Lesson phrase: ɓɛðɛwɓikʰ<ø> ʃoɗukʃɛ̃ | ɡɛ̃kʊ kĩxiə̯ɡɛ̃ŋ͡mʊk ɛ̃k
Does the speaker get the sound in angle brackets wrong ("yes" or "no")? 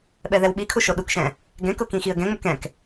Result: yes